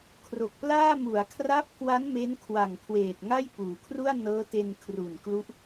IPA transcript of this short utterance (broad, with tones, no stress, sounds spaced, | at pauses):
kʰ r o˨˩ k̚ p l aː˥˩ m u˩˦ a̯ kʰ r a˦˥ p̚ k w a˦˥ n m e˦˥ n kʰ w a˨˩ ŋ kʰ w eː˨˩ t̚ ŋ a˥˩ j p uː˩˦ kʰ r u˥˩ a̯ n ɤː˦˥ t e˧ n kʰ r u˨˩ n k l u˦˥ ʔ